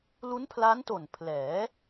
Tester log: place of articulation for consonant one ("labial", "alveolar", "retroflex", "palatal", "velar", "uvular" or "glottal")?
alveolar